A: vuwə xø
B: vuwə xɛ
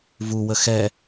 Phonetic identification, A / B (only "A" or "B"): B